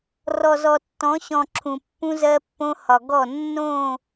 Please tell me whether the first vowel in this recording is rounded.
yes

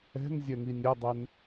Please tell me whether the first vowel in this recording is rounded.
no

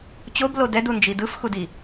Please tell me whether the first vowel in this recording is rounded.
yes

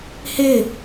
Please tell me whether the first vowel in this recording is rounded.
no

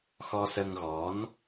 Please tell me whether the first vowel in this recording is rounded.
yes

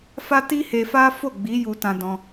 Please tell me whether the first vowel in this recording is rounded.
no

